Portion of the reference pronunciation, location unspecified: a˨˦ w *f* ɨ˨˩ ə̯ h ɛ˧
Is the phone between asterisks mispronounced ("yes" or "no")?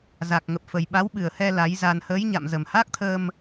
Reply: yes